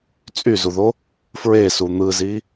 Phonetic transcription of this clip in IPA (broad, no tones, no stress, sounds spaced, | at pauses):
t͡sʼ y z u ð o | f ɹ e s u n̪ ɯ z i